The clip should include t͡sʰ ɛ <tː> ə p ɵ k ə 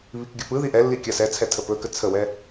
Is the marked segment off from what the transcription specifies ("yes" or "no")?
yes